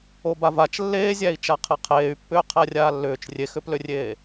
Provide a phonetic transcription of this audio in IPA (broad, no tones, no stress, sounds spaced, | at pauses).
o b a v a t͡ʃ lː eː zʲ æ i̯ t͡ʃ a qʰ e qʰ eː y̯ pː ʏː qʰ æ rʲ aː lː ʏː t͡ʃ rʲ e x ʏ p l ʏ rʲ eː